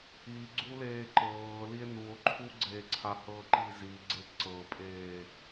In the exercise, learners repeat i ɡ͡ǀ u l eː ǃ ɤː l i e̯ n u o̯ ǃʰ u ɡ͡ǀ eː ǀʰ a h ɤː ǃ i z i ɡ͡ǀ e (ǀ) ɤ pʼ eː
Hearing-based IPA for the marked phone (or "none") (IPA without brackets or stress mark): ǀ